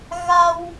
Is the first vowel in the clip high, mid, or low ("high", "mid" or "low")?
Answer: low